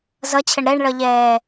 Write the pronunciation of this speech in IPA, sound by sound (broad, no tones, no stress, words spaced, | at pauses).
zʌt͡ɕʰəɳ ɾɛɳɭʌʎɛː